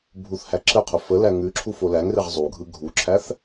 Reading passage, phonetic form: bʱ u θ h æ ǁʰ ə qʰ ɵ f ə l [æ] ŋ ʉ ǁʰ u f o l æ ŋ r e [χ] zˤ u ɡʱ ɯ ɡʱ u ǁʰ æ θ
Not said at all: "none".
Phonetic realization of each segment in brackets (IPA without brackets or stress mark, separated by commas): æ, ʁ